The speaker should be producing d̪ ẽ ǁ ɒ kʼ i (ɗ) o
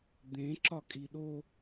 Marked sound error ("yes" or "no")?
no